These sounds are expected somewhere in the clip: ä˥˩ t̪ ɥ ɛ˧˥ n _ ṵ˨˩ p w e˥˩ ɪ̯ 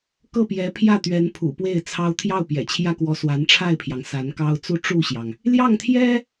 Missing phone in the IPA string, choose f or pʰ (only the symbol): pʰ